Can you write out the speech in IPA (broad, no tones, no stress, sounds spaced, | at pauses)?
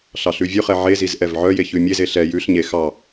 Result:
ɬ ɑ ɬ ʉ vʲ ʉ χ ɛ ʕ e z i z ʔ ɛ v ʕ œ j e ç ʉ mʲ e z e ɬ ɛ j ʉ ɬ ɲ e x ɑ